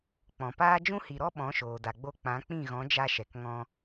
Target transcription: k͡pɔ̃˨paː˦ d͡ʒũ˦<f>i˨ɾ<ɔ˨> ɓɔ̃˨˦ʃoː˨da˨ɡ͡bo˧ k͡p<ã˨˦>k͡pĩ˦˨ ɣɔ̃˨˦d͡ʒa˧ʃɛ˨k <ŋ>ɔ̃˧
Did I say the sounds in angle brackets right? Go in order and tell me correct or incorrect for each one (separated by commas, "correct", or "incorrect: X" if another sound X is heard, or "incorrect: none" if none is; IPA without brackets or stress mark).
incorrect: h, incorrect: ɔ˦, correct, correct